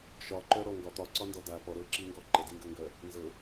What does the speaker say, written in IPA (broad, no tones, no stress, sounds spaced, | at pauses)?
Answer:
ʃ ɒ ǃ œ ɾ ɔ ŋ ɡ ɒ t̪ ɒ ǀ ɒ n d ɔ d a p ɔ ɾ ɤ ǁ i ŋ ɡ ɔ ǃ ə d i ŋ ɡ ə ŋ ɡ œ | n z ɤ